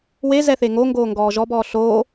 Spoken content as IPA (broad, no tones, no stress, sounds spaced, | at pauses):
w e z ɛ θ e ŋ o ŋ ɡ oː ŋ ɡ ɔː ʒ ɔ b ɔː ɬ oː